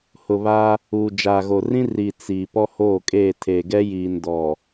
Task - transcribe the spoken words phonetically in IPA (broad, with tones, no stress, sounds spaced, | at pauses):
h ʊ˨ β aː˦ | uː˨ d͡ʒ aː˨ ɣ o˨ r ĩ˦ r i˨ t͡s iː˨ p ɔ˦ h oː˦˨ kʼ eː˦˨ tʰ eː˨ ɡ ɛ˦ j iː˨ n d ɔ˨